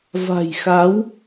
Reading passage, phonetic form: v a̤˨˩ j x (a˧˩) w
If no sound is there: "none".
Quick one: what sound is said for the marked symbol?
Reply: a˨˦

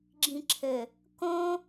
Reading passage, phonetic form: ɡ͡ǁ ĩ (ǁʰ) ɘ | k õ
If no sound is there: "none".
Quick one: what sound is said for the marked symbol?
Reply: ǁʰ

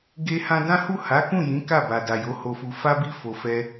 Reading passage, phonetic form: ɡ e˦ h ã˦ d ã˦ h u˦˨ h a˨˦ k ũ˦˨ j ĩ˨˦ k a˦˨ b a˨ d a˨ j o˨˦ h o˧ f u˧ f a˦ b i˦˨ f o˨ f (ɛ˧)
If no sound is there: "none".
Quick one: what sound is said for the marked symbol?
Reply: ɛ˧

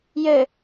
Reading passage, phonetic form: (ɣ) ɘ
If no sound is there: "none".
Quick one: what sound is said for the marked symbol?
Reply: j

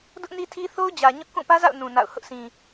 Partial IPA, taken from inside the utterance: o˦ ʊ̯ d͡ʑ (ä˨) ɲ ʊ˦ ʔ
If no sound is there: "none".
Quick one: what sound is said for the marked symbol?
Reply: ä˨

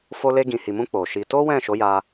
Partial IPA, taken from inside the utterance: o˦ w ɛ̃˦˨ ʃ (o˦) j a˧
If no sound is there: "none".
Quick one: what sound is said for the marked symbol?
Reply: o˨˦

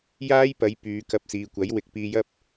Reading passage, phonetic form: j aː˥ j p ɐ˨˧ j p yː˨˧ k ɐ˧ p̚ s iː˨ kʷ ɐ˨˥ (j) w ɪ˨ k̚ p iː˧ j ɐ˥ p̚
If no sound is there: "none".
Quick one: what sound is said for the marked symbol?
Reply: j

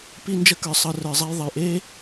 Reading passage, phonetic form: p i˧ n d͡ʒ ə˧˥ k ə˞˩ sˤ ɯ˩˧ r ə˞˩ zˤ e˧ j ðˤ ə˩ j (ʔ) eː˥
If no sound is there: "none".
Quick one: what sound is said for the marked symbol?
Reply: ʔ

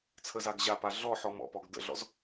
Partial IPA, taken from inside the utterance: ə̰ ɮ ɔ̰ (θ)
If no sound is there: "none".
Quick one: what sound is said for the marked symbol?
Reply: z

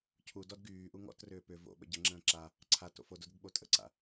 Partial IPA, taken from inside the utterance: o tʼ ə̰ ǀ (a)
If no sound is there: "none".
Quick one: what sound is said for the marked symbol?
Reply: a̰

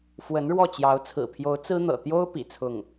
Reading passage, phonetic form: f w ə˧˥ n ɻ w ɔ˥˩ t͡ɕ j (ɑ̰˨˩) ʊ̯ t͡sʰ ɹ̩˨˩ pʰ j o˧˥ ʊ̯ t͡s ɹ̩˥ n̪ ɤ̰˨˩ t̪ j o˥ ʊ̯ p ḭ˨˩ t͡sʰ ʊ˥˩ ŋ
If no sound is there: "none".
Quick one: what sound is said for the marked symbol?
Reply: ɑ˧˥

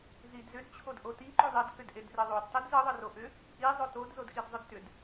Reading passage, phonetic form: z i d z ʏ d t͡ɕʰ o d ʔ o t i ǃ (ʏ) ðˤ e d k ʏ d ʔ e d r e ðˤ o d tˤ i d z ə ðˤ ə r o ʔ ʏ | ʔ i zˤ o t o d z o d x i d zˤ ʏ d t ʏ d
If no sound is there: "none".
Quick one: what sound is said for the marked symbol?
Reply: ʏ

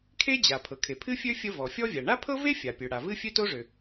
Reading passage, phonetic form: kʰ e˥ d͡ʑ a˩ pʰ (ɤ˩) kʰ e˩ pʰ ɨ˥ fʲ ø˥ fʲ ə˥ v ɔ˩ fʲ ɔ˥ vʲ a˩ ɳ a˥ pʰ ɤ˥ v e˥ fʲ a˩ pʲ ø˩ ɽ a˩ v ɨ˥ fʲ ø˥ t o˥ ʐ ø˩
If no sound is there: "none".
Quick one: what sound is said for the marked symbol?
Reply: ɤ˩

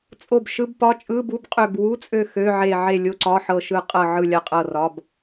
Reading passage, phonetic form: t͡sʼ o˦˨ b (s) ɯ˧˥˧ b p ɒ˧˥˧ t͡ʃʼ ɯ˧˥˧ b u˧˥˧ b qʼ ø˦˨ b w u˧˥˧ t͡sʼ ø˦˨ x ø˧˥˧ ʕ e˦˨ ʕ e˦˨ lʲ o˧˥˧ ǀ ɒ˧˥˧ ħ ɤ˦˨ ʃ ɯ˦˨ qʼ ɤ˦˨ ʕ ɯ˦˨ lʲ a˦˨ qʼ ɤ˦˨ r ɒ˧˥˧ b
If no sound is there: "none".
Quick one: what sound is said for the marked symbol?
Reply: ʃ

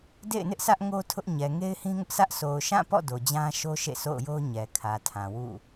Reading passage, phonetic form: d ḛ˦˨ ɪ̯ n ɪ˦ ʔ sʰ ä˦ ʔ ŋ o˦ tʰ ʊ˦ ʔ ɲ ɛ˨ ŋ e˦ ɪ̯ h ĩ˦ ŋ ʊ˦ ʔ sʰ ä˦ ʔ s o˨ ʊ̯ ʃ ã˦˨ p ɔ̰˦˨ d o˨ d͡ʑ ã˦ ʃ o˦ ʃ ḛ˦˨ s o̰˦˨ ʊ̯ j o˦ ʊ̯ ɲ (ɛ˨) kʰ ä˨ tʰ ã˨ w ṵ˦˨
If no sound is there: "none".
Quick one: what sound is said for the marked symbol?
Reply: ɛ˨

